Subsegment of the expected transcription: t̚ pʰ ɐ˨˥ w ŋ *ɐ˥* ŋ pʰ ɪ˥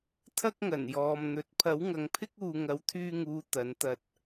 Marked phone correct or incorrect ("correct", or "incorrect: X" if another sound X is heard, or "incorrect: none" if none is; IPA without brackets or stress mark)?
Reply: incorrect: ɐ˨˧